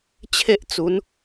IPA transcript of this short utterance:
t͡ɕʰ e˦ ʔ t͡s u˨˦ n

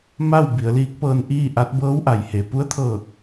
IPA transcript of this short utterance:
m a˥˨ w b i˩˧ ə̯ l iː˧˥ k̚ p ɤː˧ n ʔ iː˥˨ ʔ a˧˥ t̚ b ɤː˧˥ w ʔ a˩ j h e˩ p u˧˥ ə̯ t̪ʰ ɤː˧˩ k̚

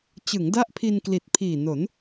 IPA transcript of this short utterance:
t͡ɕ ɯ˩˦ ŋ d a˦˥ ʔ pʰ i˧ n k l i˨˩ t̚ pʰ iː˨˩ n o˩˦ n

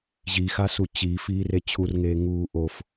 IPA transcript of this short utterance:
ʑ i x a s u t͡ɕ i f iː r e t͡ɕʰ u r ŋ eː ŋ uː ʔ o f

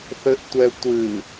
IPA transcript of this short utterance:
θ ɘ ʔ tʷ ɛ tʷ ɨ

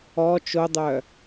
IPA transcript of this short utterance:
ɔ t͡ʃ o dˤ œ

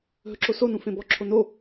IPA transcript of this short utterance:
ɦ ɵ ǁ o s o n ũ f ẽ b ɔ ǁʰ o n o

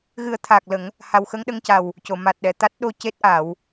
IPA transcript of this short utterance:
ɣ ɨ˨˩˦ ə̯ t̪ʰ aː˨˩ k̚ l ə˨˩˦ ŋ | h a˨˩ w x ə˧ ŋ ɗ ə˧ ŋ c a˨˩ w | c o˨˩˨ m a˨˩ t̚ ɗ ɛ˨˩˨ t̪ a˦˥ t̚ ɗ o˧ c e˦˥ t̚ ʔ a˨˩˦ w

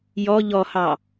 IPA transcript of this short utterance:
j ɔ ʎ ɔ h ɑ

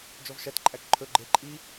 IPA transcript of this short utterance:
d͡ʒ ɔ v ʃ æ t ǃʼ æ k ǃʰ ɵ ɡ͡ǃ e ǃʼ i

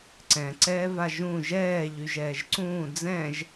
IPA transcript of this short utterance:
ǀ ɛ̃ ǀ ɛː v a ʒ ũ ʒ ɛː ʎ y ʒ ɛː ʒ ǀ ũː d͡z ɛ̃ ʒ

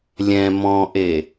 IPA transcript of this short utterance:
lʲ ɛ̃ m ɔ̃ ʔ e

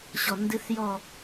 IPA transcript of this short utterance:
ɕ ɔ˧˩ n d ɨ˦˥ θ j ɔ˥˧

